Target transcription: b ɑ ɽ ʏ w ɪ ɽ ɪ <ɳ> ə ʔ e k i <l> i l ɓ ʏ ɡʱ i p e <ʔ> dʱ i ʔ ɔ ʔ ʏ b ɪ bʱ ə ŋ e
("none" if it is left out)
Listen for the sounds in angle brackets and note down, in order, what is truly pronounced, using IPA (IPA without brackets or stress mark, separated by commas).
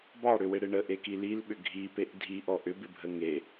ɳ, l, ʔ